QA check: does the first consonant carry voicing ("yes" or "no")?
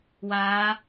yes